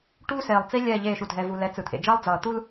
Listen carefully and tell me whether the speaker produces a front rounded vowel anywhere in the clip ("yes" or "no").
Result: no